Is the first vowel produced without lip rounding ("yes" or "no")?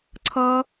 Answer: yes